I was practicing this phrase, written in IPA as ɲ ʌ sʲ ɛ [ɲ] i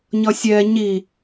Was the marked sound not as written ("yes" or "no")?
no